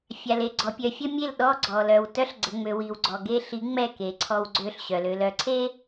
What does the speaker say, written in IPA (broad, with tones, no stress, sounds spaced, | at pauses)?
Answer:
fʲ a˨ l e˨ ɡ͡ǀ ɔ˨ pʲ œ˨ fʲ ə˦ mʲ e˦˨ l ɗ ɔ˦ ɡ͡ǀ ɔ˨ l œ˨ w t œ˦ ɬ ɡ͡ǀ ə˨ ŋ͡m ø˨ w i˨ w ɡ͡ǀ ɔ˨ ɡ e˦ ɬ i˨˦ ŋ͡m ɛ˦˨ k e˨ ǀʰ ɔ˦ w ɡ͡ǀ ø˦ ɬ ɕ œ˨ l ø˨ l œ˨ ǀʰ e˦